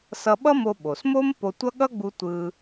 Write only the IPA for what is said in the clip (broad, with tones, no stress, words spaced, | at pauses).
sʌ˧ɓʌ˥mo˧ ɓo˩smo˥m po˧tʷʌ˥ ɠʌ˥ɡ͡bu˧ tʷɯ˧